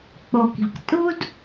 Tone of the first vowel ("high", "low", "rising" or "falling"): low